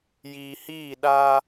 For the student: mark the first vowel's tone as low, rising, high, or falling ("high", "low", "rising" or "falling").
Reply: low